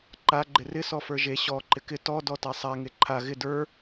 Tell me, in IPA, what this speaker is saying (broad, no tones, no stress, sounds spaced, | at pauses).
ǃ a ɡ͡ǃ ɪ r ɪ s ɔ f ə˞ ʒ e ɕ ɔ ǃ ɪ k ɪ t ɔ d ɔ t a sˤ a ŋ e ǃʰ a ɣ ɪ d ə˞